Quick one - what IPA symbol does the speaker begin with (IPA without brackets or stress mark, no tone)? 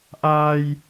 ʔ